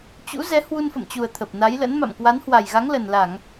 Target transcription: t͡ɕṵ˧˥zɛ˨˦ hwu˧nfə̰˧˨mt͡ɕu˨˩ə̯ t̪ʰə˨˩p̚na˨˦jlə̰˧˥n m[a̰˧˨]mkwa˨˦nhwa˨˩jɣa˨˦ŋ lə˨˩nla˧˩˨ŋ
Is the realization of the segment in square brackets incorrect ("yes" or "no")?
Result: no